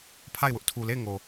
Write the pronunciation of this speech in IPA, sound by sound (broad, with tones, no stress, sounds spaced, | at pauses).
pʰ a˦˨ ɪ̯ w ʊ˦ ʔ tʰ u˨ l e˦˨ ɪ̯ ŋ o˨